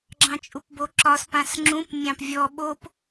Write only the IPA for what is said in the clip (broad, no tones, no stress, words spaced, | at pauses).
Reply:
ɡ͡ǁɑ̃t͡ʃʼupboǁɒs pãsŋ͡ǁũp mʲɑ̃pvʲɔ ɓop